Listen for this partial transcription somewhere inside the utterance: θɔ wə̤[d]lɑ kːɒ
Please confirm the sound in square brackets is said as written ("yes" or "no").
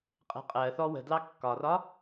yes